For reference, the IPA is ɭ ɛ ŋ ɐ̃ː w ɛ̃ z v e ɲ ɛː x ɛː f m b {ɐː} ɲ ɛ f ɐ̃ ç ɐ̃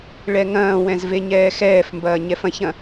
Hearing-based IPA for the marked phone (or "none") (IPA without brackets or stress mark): ɐː